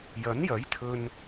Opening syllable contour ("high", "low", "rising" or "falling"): rising